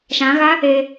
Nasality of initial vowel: nasal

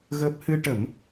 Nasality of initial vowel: oral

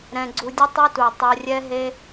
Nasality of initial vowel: nasal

